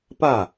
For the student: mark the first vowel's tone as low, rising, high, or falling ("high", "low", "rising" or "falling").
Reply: falling